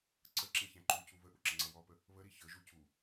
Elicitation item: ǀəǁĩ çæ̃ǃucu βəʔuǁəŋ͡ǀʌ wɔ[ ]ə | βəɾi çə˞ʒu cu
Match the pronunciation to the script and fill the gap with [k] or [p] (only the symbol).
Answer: p